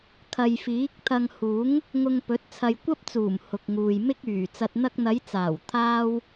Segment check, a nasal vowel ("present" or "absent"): absent